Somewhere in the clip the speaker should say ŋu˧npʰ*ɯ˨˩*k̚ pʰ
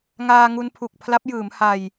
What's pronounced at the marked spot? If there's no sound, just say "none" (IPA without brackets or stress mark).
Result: u˨˩